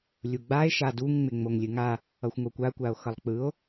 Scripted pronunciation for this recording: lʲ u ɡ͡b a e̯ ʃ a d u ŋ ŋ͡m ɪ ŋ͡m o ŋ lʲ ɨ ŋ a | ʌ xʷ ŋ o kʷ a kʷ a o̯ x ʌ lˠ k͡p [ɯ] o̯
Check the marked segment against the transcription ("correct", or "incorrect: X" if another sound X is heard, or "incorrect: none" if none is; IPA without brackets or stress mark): correct